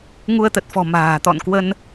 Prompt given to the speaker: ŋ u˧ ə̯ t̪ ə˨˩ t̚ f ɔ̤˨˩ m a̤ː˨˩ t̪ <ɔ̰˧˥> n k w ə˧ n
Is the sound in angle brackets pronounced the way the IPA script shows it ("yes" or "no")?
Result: no